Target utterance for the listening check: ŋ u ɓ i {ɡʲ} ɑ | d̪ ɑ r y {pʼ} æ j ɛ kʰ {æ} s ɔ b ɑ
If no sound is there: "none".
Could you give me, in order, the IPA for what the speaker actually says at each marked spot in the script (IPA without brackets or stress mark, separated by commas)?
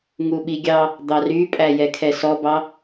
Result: ɡʲ, pʼ, ɛ